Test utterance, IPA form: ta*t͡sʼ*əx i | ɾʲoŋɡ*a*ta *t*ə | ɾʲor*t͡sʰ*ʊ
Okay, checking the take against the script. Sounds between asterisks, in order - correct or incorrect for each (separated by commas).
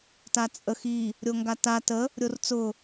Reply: correct, correct, correct, incorrect